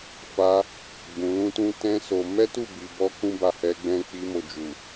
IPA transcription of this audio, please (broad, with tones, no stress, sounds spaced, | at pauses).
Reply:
f a˧ | ɡ͡b ũ˧ l ũ˦ t ũ˦ t ɛ̃˦ s o˧ m ɛ˦ t u˦˨ b i˨ b ɔ˧ k ũ˦ b a˧ h ɛ˧ ɡ͡b ɛ̃˧ k͡p i˧ m o˨ d͡ʒ u˨